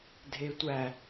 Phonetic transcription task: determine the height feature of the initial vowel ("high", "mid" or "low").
mid